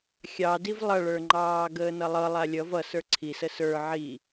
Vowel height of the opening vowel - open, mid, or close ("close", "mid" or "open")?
open